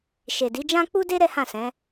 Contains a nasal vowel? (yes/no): yes